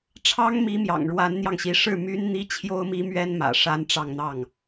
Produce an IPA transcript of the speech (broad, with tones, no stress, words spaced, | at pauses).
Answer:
ʈ͡ʂʰɑ˥ŋmi˧˥ mjɑ̰˨˩ŋɻwa˧˥nn̪jɑ˧ŋɕi˧˥ ʂɻ̩˥˩my˥nn̪i˥ t͡ɕʰjo˥ʊ̯mi˥mɥɛ˥nmä̰˨˩ ʂa˥nʈ͡ʂɑ˥˧ŋn̪ɑ˥˩ŋ